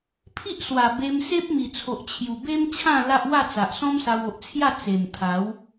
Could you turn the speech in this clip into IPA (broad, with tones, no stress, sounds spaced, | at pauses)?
pʰ i˦ ʔ s w a˨˩ b e˧ m s e˦ p̚ m i˨˩ t͡sʰ o˨ ʔ t͡ɕʰ j u˨˩ b e˦ m t͡ɕʰ ã˥˧ l a˦ ʔ w a˥˧ t͡s a˨ ʔ s ɔ̃˦ m s a˧ w o˨ ʔ t͡sʰ j a˥˧ t͡s e˨˩ m t̪ʰ a˨˦ w